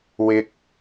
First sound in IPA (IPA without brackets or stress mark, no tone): w